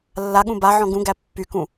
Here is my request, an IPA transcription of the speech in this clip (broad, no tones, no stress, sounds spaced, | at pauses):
lː a ɠ ũ b a ʕ ɔ̃ ɡ ũ ɡ æ pː y k ũ